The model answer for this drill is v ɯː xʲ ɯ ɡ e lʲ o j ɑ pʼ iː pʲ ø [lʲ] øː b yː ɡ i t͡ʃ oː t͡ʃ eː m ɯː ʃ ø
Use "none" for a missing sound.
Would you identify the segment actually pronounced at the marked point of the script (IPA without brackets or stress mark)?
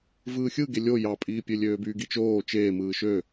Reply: lʲ